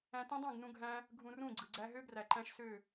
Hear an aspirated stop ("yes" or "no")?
no